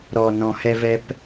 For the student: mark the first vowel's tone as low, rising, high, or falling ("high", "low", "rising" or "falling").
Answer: low